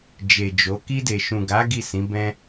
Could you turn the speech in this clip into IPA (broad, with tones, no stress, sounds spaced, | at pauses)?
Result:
d͡ʒ e˨ d͡ʒ o˨˦ k i˧ d e˨ ʃ ũ˨ ɡ a˨˦ ɡ i˦˨ s ĩ˨˦ b ɛ̃˦